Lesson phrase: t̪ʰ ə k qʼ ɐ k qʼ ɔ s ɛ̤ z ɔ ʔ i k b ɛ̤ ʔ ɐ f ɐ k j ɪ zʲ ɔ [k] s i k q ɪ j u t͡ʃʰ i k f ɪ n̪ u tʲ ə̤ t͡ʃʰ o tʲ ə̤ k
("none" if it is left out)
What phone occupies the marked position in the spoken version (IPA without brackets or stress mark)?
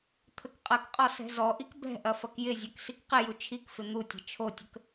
k